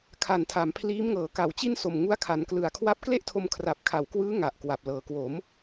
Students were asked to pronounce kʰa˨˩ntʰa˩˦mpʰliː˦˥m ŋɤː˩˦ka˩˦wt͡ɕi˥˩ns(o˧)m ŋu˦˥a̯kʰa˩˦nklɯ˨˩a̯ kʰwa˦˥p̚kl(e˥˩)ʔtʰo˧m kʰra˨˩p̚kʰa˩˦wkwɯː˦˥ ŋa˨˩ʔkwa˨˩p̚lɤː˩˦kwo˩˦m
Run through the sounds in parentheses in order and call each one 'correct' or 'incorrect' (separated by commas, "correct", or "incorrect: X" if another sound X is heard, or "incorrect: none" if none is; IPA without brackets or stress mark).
incorrect: o˨˩, correct